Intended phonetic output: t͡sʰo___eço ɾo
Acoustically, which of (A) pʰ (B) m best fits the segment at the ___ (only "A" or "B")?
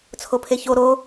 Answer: A